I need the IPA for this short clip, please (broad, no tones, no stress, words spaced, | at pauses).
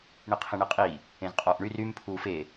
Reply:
ɳiqʰẽɳiqʼi | ẽzqʼɔːʔɳyr ym pʰuːfe